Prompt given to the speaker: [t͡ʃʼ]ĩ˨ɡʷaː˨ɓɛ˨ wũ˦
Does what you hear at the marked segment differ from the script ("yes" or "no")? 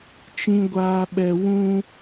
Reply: yes